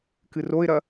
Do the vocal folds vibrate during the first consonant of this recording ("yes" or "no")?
no